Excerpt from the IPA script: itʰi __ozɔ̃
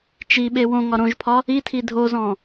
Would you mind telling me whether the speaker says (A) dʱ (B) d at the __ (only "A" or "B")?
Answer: A